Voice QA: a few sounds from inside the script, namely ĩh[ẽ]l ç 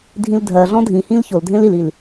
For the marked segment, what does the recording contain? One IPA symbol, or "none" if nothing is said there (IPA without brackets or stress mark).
ĩ